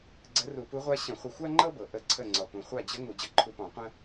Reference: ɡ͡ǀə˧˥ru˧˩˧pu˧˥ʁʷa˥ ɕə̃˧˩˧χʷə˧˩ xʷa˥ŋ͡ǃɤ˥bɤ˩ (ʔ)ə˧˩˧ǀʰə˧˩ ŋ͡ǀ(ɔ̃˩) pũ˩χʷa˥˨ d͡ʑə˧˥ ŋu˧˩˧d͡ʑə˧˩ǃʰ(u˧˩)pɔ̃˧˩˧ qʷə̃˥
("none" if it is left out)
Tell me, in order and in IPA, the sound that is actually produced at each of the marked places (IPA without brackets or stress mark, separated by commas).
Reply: ʔ, ɔ˩, u˧˩